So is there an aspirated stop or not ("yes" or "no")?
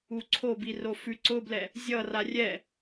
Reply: yes